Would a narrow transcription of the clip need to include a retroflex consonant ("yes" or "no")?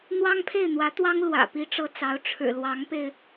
yes